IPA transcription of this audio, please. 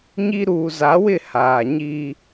ɲi˦ ɾuː˨ za˨˦wɪ˦˨ haː˨ɲiː˦

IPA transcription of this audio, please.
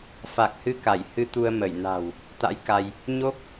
fa˨˩k̚hɨ˧ka˧˩j hɨ˧t̪u˧ə̯ mə˧˩j na̤˨˩w | t̪a̰˧˥j ka˧j | ɲo˦˥k̚

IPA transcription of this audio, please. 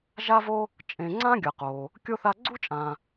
ʒa˥vo˥ | t͡ʃʼẽ˨ŋ͡ǀã˥ɡʲʌ˩qo˩ | kʲo˥θa˦ ɡ͡ǀu˥t͡ʃʼã˨

